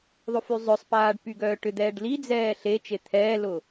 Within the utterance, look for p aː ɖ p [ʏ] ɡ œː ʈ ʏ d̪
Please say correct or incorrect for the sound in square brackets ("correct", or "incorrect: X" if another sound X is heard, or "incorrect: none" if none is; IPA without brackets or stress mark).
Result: incorrect: y